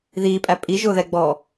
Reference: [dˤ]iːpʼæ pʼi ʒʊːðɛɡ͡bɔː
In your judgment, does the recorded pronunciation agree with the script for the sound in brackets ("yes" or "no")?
no